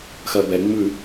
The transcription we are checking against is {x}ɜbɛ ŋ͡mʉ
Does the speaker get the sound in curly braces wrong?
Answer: no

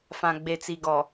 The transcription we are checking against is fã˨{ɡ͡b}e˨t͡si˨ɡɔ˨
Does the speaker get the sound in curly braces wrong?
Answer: no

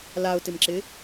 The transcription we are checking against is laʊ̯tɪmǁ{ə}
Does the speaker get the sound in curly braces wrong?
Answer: yes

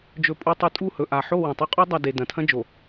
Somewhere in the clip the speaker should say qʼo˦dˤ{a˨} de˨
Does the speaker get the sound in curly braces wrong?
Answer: yes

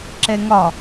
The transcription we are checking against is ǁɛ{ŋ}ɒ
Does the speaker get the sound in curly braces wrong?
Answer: no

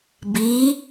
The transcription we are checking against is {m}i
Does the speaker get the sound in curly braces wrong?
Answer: yes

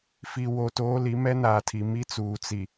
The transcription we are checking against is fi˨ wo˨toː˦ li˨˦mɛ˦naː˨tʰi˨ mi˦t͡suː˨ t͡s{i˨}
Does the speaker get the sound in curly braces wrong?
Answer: no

